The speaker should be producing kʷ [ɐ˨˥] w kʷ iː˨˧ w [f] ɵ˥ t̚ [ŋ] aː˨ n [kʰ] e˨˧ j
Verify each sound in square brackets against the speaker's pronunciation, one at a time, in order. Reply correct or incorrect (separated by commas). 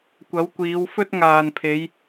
correct, correct, correct, incorrect